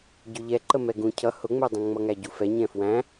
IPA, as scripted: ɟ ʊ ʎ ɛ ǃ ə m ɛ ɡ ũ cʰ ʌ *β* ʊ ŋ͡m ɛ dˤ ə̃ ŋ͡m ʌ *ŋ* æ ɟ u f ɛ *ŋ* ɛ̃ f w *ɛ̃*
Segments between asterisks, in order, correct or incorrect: incorrect: h, correct, incorrect: ɲ, incorrect: æ̃

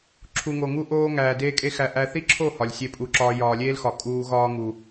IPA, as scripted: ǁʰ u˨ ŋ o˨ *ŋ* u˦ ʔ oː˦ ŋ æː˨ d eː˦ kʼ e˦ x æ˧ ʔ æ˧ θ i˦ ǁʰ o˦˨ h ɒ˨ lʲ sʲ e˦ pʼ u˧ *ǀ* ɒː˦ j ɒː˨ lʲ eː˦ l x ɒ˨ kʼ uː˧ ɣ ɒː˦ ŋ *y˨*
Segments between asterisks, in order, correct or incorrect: correct, incorrect: ǁ, incorrect: u˨

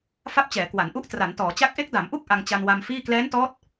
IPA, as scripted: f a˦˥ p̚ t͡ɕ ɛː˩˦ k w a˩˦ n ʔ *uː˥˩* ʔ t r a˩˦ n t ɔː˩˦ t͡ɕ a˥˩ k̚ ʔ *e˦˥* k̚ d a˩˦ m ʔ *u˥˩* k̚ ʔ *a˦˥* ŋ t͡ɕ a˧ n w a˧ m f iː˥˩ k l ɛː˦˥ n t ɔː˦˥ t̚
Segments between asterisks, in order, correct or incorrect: incorrect: u˥˩, correct, correct, incorrect: a˧

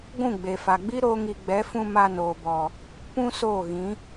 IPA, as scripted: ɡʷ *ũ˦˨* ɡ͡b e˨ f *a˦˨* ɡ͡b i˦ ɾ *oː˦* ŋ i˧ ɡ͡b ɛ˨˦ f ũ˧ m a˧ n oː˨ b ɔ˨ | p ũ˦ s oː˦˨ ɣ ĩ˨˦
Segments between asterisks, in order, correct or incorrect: correct, incorrect: a˨, correct

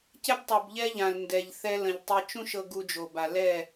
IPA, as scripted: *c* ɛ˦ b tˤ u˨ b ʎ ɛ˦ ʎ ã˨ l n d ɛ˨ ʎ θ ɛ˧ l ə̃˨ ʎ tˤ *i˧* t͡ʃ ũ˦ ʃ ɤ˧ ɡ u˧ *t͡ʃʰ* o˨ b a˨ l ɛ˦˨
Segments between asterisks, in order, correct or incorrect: correct, correct, incorrect: d͡ʒ

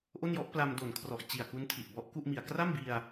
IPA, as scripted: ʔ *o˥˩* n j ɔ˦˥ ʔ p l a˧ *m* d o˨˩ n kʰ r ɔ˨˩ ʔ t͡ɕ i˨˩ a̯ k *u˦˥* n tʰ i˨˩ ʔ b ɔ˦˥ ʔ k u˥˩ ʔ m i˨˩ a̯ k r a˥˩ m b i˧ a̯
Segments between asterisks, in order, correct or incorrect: correct, correct, correct

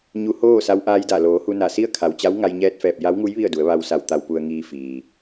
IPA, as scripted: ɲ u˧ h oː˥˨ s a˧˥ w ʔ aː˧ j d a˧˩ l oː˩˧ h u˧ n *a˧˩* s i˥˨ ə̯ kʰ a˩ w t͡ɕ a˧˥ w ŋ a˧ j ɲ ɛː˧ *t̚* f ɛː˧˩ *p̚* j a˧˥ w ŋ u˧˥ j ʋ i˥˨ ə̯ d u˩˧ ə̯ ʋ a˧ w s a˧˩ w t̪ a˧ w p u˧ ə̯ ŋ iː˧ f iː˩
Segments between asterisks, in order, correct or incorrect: correct, correct, correct

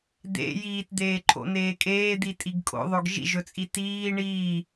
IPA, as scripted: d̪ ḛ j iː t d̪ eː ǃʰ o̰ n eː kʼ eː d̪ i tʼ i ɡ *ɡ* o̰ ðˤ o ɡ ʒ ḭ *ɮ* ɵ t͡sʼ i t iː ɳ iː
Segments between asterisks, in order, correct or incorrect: incorrect: kʼ, incorrect: ʒ

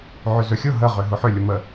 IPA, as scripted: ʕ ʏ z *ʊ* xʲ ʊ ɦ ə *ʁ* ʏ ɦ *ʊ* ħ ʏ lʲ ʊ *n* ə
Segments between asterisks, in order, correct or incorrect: incorrect: ɵ, correct, correct, incorrect: m

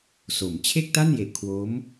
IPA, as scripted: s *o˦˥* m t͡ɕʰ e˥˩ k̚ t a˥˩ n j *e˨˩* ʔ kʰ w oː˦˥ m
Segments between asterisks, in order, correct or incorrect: incorrect: o˩˦, correct

